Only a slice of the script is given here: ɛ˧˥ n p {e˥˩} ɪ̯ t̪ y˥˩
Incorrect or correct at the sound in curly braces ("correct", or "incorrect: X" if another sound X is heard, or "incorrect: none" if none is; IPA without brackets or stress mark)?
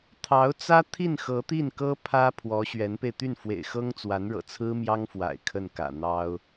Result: incorrect: e˧